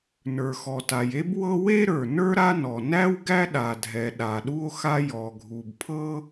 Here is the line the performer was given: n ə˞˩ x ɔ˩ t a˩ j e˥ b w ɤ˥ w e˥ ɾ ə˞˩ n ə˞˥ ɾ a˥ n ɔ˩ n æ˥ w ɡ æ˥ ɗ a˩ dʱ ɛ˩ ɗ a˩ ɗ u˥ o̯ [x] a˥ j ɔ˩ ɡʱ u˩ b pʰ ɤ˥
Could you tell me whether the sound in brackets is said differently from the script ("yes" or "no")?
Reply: no